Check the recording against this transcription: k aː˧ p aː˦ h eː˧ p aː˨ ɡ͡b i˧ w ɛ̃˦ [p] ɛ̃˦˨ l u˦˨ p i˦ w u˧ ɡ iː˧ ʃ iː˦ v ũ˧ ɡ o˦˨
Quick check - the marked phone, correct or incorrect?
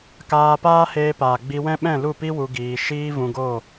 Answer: incorrect